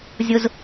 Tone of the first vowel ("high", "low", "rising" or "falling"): high